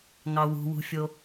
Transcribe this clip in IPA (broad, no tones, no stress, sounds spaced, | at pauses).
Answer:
ŋ ɑ w ṳ w ṳ fʲ o